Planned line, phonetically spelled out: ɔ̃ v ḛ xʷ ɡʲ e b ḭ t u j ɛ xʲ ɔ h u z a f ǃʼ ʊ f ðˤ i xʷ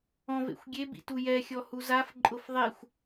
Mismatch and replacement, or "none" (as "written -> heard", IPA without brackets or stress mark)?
none